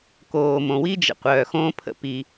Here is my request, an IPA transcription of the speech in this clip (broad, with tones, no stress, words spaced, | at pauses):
koː˩mõ˩wi˥d͡ʒə̰˩ qʷœː˩xõː˥pʰə̰˥ pi˩